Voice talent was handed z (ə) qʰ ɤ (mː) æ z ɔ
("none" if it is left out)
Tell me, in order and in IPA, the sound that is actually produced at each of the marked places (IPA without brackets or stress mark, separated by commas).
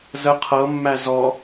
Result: ə, mː